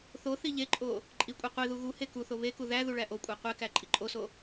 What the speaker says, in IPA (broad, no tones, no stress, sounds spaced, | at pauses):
θ o θ i ʎ e ǃʼ o | ǃʼ i kʷʼ e qʷ i ð u ɣ u h e k u θ o β e k u ð æ ð u ɭ æ ʔ o kʷʼ æ qʷ e k æ ǃʼ i ǃʼ o s o